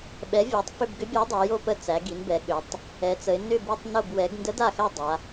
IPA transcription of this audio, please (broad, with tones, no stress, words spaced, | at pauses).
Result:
ɓɛ˩˧vʲa˩˧tˤ fʏ˦˨bɡʏ˧˥bʲa˧˥ dˤo˩˧jo˦˨pə˧˥ t͡sæ˩˧ɡi˩˧nbɛ˩˧ ɠʏ˩˧tˤ | ɛ˩˧t͡sə˩˧ɪ̯ nʏ˦˨ bi˦˨tˤ no˦˨b wɛ˩˧ɡ ndə˧˥da˦˨xæ˦˨ dˤa˩˧